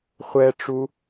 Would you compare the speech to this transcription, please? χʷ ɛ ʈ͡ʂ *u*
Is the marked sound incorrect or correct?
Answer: correct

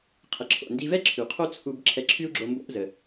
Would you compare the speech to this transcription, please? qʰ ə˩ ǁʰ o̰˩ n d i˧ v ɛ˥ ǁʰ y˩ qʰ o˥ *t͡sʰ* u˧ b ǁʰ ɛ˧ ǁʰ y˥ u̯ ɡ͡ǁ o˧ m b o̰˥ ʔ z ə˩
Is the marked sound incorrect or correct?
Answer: correct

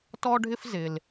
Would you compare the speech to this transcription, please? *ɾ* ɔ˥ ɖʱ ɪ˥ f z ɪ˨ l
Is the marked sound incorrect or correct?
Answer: incorrect: t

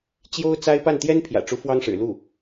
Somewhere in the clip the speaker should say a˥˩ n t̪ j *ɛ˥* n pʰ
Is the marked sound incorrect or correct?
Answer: correct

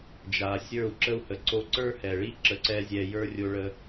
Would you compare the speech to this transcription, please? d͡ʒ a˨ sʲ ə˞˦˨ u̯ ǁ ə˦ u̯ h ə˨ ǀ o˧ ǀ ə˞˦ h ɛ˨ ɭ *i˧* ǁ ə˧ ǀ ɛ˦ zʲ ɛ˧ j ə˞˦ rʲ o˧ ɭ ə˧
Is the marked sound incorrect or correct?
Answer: incorrect: i˦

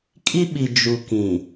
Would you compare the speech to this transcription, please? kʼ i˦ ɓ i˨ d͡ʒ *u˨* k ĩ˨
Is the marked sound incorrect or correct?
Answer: correct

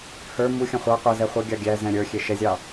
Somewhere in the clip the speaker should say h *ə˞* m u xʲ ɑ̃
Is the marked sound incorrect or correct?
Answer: correct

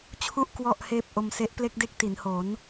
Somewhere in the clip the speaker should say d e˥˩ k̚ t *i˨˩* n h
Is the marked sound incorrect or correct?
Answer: incorrect: i˩˦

